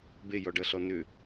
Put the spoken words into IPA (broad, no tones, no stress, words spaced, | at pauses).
bejɔɖʌɬɔ nʏ